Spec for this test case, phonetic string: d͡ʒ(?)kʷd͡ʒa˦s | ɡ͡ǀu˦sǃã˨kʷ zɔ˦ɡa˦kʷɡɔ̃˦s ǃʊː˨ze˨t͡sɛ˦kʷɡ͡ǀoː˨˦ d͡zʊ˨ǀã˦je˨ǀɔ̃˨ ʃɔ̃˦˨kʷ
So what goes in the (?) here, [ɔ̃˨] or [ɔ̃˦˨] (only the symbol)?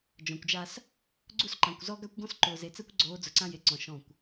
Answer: ɔ̃˨